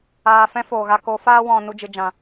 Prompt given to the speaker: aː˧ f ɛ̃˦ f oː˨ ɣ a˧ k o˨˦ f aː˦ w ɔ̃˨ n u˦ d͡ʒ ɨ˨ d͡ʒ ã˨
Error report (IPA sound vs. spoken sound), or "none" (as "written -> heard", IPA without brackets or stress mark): u˦ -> u˧